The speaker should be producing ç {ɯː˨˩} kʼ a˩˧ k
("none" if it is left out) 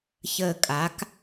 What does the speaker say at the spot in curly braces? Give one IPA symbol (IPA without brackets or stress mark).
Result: əː˨˩